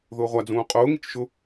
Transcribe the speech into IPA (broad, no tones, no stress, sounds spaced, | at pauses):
ð ʊː ʁʷ a d͡z ũː qʼ ʊː ŋ i t͡ʃ ʃ ʊ